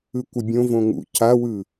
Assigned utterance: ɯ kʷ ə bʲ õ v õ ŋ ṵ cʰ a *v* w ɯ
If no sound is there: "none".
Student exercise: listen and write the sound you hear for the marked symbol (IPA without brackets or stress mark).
none